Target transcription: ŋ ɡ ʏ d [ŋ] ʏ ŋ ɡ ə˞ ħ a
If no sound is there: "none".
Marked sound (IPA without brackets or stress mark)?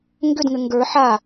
ŋ